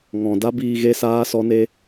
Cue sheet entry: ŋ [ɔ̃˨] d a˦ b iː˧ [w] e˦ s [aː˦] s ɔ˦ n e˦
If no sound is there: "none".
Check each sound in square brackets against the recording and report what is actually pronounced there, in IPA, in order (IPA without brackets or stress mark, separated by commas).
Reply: ɔ̃˨, ɣ, aː˦